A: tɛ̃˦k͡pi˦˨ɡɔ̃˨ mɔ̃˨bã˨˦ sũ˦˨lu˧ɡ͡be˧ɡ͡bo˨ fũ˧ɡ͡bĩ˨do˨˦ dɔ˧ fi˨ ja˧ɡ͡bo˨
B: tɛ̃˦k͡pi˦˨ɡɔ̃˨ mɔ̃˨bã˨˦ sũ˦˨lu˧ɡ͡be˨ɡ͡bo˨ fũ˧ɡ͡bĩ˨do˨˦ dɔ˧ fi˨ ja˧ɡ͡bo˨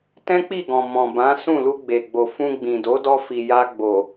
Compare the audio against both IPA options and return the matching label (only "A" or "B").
B